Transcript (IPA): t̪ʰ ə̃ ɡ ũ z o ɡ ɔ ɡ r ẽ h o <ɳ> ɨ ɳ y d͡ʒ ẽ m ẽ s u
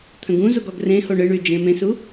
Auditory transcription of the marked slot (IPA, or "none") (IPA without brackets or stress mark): ɳ